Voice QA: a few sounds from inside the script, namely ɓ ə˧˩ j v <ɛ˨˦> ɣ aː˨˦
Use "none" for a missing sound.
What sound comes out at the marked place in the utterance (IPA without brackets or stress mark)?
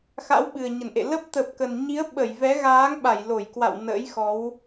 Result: ɛ˨˦